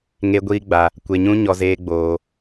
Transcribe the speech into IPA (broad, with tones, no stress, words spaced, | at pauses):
ŋe˦ ɡʷiː˦ɡ͡ba˧ | kʷe˧ɲũ˦ ɲɔ˧zeː˦ɡ͡boː˧